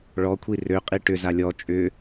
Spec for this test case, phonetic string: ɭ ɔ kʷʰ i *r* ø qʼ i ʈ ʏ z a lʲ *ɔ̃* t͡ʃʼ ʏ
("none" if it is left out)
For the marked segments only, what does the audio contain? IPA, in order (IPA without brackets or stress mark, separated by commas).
r, ɔ